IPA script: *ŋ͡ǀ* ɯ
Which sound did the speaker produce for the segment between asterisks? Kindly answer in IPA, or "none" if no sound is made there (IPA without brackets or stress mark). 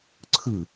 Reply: ǀʰ